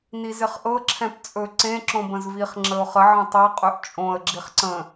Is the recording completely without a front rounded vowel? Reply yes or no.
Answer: yes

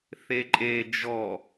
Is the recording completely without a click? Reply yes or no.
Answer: no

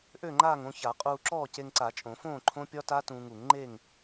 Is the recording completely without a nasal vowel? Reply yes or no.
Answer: no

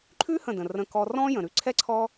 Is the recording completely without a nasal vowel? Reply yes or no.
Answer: no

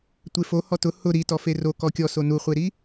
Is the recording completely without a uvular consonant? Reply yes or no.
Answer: no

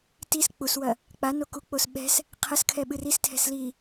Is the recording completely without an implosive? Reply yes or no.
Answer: no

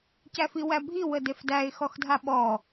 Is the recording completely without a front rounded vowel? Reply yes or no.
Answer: yes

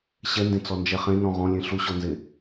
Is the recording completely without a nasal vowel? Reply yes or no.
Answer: no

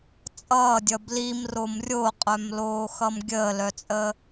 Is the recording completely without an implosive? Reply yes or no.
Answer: yes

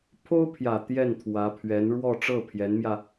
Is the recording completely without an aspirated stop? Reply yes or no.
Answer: no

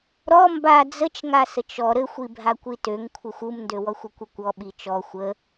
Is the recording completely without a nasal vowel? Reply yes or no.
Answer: yes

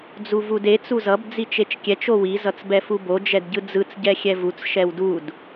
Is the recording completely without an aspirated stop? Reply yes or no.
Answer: yes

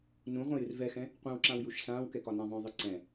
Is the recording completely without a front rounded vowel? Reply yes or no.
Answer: yes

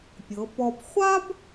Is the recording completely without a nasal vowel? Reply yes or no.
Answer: yes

